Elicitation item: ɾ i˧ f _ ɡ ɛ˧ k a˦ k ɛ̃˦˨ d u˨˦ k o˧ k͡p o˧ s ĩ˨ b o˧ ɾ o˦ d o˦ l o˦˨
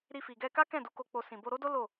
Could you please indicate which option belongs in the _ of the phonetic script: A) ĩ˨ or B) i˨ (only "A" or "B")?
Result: B